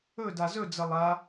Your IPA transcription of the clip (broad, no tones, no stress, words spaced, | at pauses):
ɵda zɵd͡zɐ lˠa